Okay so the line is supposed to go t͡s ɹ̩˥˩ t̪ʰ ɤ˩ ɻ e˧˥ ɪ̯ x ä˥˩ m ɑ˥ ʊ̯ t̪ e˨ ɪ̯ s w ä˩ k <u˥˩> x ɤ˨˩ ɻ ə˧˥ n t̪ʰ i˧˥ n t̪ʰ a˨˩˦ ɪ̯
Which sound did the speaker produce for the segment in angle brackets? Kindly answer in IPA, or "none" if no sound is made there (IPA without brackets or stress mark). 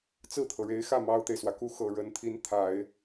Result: u˥˩